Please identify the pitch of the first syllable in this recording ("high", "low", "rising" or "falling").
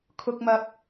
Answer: low